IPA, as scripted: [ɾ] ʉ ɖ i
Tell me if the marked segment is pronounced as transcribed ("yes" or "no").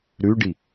yes